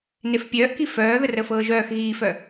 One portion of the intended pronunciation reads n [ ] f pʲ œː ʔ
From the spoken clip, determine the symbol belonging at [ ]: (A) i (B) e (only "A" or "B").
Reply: B